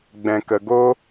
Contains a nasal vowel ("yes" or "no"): yes